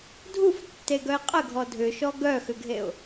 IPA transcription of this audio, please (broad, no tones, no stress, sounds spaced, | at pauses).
dʱ u f tː e ɡ œ ɪ̯ qʼ ə ɡʱ ɔ dʱ ʏ ʃ ɔ ɡ œ x ʏ ɡʱ e ʊ̯